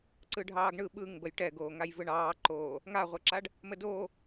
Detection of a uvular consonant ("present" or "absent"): present